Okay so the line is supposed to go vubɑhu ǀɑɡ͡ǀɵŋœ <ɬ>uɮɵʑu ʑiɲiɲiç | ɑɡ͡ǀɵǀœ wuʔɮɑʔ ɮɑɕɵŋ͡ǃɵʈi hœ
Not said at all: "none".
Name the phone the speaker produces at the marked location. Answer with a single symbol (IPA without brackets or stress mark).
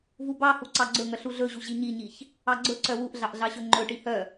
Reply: ɬ